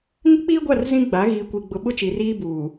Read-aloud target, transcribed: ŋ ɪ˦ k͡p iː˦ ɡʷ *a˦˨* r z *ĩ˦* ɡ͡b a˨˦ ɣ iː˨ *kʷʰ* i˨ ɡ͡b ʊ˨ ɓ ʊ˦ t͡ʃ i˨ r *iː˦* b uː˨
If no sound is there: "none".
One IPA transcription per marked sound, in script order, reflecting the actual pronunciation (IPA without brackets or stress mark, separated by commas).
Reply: a˦˨, ĩ˦, kʷ, iː˦